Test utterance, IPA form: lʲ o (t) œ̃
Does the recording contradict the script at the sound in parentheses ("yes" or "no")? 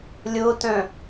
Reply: no